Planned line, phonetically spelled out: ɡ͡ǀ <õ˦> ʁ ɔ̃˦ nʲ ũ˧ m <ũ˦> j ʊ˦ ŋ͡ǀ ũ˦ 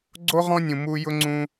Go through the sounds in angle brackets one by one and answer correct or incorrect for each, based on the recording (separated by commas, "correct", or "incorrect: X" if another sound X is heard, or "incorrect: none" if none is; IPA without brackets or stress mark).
incorrect: o˦, incorrect: u˦